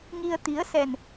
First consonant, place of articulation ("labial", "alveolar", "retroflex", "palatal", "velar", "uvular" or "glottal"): velar